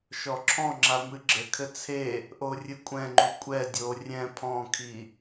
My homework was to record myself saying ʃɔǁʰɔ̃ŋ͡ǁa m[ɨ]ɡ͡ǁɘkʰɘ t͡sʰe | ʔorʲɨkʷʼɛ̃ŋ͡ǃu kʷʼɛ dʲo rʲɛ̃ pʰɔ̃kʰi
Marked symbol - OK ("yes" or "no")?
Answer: yes